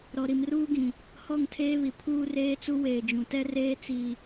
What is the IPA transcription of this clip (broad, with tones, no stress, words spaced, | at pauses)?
ɾɔ˨ɾi˨mruː˦ɡĩ˨ | hɔ˦˨ŋtʰeː˦ βi˨ pʰuː˦reː˦t͡su˦ weː˨d͡ʒũ˨ tɛ˦reː˦ t͡si˦